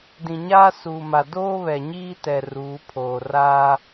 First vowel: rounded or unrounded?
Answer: unrounded